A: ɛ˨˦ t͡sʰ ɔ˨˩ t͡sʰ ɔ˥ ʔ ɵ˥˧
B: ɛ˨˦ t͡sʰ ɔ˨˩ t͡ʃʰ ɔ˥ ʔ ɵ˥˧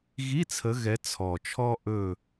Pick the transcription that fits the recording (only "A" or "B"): B